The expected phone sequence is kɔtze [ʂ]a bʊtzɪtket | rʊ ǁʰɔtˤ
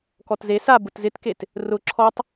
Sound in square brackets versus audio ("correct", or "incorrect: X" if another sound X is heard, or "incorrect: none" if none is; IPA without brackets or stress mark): incorrect: s